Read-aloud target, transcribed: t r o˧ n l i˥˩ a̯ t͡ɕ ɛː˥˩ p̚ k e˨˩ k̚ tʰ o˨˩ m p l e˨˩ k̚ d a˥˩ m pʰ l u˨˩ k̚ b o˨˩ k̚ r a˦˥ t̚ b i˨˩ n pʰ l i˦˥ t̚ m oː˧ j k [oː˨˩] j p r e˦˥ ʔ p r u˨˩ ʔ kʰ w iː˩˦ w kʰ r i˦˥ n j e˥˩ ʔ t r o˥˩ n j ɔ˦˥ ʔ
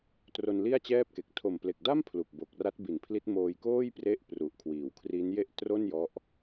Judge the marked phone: incorrect: oː˥˩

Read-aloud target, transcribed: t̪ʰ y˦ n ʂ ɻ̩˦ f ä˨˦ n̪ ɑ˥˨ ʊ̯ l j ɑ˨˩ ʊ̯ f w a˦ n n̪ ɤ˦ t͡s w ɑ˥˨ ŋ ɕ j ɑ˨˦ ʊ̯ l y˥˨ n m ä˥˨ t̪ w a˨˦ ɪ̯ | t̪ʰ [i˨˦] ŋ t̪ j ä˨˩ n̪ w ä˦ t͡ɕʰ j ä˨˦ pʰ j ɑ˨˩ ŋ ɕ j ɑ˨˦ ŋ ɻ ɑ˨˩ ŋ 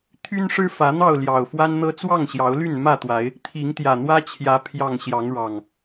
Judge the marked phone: correct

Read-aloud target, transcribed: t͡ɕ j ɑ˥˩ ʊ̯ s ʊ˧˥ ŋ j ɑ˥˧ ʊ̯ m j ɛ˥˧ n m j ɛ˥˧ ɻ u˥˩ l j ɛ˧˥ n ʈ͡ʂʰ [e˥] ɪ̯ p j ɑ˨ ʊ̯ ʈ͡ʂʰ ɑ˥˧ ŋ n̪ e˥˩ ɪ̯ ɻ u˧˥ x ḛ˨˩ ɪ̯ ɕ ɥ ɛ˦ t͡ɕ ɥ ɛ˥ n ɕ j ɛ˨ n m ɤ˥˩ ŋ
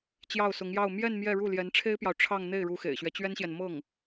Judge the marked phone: correct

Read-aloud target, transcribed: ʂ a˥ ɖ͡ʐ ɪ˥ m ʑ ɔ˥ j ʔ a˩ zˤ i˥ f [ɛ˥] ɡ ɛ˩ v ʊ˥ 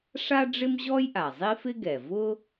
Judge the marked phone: incorrect: ɪ˥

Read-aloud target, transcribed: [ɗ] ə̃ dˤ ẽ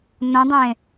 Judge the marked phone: incorrect: n̪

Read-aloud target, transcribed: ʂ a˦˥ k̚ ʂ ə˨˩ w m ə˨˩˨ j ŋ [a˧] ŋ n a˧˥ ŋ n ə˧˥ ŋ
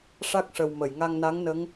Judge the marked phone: correct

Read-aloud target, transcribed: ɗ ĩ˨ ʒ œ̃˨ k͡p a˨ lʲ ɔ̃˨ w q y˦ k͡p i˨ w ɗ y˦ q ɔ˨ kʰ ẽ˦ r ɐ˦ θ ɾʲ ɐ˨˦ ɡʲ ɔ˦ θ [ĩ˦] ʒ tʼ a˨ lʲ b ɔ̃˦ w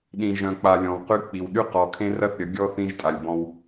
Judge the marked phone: correct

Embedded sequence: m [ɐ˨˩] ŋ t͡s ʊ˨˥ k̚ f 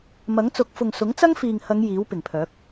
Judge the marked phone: incorrect: ɐ˨˥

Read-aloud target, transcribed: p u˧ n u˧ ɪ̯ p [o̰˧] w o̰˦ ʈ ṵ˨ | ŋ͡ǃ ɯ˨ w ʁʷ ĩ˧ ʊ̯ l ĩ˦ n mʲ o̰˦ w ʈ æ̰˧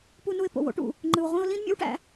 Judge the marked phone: incorrect: o̰˨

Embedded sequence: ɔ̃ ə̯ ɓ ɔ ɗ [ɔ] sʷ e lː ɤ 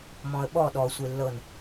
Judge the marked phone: correct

